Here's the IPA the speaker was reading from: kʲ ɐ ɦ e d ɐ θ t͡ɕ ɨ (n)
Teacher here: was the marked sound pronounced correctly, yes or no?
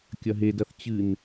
yes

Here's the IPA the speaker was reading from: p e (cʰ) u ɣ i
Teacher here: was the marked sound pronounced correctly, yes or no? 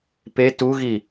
no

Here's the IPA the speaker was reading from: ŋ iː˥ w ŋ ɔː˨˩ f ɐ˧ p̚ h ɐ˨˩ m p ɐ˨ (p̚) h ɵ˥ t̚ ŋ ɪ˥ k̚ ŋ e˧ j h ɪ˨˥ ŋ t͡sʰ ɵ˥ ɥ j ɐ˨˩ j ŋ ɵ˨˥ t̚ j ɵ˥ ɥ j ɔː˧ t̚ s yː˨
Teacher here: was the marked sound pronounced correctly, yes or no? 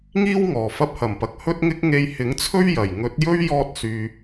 no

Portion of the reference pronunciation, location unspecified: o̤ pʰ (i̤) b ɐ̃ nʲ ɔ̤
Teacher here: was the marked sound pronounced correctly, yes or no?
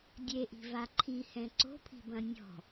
yes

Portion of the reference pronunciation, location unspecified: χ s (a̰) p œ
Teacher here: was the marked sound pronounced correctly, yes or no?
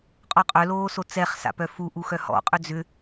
yes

